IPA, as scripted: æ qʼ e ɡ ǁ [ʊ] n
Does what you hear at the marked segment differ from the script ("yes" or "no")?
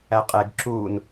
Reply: yes